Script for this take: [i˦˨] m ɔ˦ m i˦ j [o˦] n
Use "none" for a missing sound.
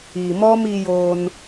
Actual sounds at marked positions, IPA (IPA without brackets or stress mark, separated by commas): i˨, oː˦